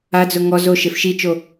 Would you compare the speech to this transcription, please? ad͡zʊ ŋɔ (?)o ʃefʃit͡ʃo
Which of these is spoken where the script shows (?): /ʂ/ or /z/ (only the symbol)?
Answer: z